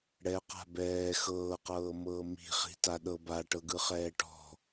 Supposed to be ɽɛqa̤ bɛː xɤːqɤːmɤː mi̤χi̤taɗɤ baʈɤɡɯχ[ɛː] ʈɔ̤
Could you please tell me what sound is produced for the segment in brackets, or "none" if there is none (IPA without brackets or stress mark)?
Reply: ɛː